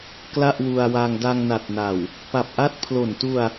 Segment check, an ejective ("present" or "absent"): absent